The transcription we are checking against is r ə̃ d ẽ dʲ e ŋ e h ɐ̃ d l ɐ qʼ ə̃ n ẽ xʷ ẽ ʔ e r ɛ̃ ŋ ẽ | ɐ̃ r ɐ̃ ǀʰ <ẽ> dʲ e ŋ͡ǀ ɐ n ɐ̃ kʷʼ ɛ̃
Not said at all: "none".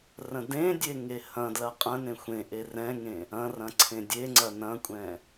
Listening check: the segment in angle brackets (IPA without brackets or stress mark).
ẽ